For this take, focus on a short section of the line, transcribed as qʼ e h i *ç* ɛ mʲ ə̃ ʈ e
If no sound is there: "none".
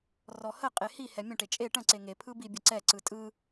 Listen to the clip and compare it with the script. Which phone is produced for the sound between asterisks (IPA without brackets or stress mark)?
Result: h